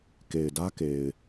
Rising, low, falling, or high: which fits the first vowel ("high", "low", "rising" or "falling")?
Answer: low